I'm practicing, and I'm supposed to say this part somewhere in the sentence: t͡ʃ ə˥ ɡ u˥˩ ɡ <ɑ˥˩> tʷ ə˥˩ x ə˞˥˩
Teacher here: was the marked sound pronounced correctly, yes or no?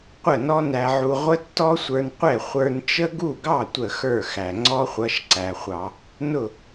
yes